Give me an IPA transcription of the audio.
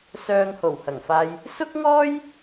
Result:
sœː˧ŋho˨˩whɐ˨˩ŋfaː˧j | sʊ˥k̚ŋɔː˥j

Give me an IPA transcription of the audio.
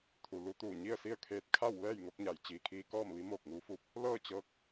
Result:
t̪ʰu˩lu˧t̪uː˧˩ ɲi˥˨ə̯si˥˨ə̯kʰeː˧t̚ kʰa˥˨w ʋɛː˥˨jŋo˧k̚ɲa˩˧j t͡ɕiː˩kʰiː˧kɔː˥˨mʋi˧˥ moː˧˩k̚ŋuː˧˥fuː˧p̚ | lɤː˥˨t͡ɕɤː˧k̚

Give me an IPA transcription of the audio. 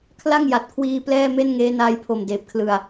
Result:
kʰla˥˩ŋja˨˩t̚kʰwiː˧ plɛː˥˩me˥˩n ŋeː˦˥naː˦˥jpʰo˨˩m deː˨˩p̚kʰlɯ˨˩a̯

